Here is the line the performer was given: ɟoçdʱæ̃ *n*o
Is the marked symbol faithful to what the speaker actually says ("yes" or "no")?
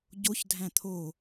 no